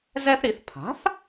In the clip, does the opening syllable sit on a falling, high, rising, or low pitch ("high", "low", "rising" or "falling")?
high